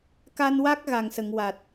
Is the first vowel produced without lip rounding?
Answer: yes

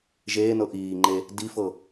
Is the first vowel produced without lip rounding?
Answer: yes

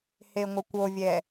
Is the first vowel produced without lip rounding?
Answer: yes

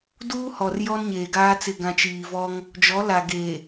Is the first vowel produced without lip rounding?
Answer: no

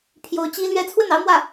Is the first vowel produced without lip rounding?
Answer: no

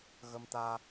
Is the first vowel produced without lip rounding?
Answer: yes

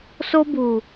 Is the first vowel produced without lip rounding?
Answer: no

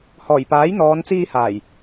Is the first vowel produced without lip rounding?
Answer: no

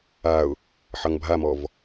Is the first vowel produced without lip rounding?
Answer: yes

